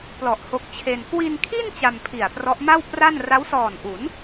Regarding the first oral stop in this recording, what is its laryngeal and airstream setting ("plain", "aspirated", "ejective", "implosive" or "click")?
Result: plain